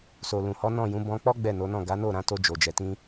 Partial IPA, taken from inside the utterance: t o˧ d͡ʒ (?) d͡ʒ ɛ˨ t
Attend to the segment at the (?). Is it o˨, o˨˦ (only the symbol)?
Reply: o˨